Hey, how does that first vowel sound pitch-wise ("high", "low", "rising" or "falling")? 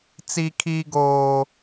high